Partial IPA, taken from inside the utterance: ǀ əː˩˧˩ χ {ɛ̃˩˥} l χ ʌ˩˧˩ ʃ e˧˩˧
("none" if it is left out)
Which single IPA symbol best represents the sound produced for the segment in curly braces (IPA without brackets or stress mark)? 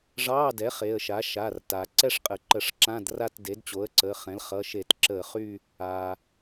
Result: ɛ̃˩˥